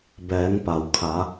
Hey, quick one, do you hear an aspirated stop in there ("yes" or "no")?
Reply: yes